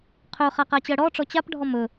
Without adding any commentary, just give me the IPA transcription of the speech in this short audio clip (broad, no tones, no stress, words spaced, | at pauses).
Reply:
qʰɵχa qat͡ɕɜɽɔʈ͡ʂɔ t͡ɕapɖʱɔ mɵ